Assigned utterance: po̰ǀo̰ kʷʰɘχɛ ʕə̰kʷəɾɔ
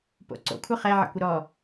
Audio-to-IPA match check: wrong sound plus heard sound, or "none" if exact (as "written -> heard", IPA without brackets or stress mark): none